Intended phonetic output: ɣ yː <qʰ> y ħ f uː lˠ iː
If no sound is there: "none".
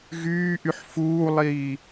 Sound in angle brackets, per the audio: ʔ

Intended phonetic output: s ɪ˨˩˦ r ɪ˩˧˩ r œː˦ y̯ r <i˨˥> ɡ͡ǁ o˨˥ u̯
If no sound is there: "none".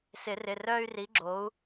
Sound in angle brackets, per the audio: i˨˥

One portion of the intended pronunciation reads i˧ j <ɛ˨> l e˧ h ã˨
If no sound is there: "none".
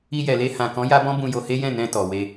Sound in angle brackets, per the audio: ɛ˨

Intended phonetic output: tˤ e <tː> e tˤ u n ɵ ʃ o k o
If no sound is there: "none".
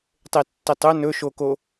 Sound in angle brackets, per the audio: tː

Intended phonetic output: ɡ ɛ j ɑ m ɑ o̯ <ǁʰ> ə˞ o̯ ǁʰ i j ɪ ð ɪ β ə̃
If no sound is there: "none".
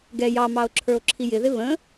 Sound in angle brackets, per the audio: ǁʰ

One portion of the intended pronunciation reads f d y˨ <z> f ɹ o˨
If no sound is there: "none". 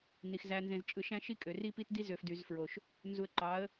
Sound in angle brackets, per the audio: z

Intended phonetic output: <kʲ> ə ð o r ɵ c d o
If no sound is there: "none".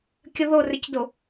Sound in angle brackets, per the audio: kʲ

